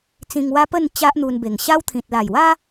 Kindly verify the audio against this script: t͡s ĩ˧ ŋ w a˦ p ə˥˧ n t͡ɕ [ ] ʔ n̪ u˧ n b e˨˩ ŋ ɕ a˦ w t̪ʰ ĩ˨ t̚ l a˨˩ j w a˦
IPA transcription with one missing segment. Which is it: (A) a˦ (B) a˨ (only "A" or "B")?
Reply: A